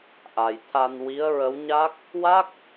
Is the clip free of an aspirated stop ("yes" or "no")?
no